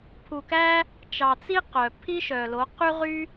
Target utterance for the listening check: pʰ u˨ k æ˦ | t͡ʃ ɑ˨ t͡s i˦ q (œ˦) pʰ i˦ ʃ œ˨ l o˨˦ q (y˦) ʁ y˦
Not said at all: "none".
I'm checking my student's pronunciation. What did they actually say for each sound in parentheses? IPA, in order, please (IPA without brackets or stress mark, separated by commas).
œ˨, y˦